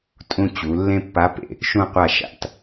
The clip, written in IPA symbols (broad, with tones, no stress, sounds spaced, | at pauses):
tʼ ũ˧ t͡ɕ u˩˧ lː ẽ˧ pː a˨˥ p ḛ˧˩ | ʃ ũ˧˩ qʷ a˧˩ ʃ a̰˧˩ t